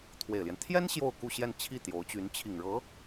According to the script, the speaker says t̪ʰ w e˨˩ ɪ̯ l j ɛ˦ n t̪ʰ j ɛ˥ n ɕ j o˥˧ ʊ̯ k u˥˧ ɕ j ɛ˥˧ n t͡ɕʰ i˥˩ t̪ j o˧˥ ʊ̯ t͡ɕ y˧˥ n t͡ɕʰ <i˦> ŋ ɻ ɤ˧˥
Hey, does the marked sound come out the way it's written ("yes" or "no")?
no